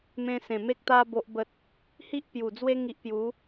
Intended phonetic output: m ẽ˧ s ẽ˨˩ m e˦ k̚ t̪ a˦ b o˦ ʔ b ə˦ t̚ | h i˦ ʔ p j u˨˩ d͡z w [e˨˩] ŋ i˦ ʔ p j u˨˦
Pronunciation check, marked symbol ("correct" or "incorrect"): incorrect